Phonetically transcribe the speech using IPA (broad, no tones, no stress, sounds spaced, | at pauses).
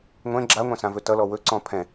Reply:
ŋʷ ɛ̃ ɡ͡ǁ a ŋʷ ã s ã v ɵ t ʌ l ɔ w ɵ ǀ ɔ̃ pʰ ɛ̃